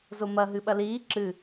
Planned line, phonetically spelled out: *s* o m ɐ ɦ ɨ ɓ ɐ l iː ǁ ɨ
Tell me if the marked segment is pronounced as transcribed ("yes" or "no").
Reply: no